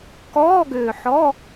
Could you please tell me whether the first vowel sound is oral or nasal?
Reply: oral